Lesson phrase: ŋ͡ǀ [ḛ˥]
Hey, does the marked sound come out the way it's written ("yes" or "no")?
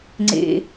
yes